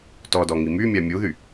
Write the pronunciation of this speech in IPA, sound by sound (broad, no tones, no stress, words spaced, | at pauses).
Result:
tɔdɔŋi mymʲa mʲuðy